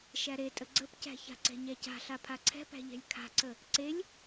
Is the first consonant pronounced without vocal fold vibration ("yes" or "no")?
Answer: yes